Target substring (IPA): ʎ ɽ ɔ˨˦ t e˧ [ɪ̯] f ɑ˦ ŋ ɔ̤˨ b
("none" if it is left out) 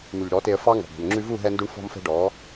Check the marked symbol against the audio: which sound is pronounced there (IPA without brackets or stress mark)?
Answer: ə̯